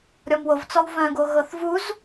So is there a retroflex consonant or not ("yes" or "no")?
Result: no